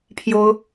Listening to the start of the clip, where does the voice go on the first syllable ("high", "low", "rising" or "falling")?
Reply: high